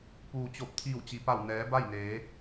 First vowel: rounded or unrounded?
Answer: rounded